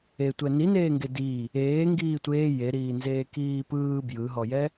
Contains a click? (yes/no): no